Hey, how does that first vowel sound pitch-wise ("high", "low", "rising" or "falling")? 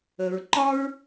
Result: low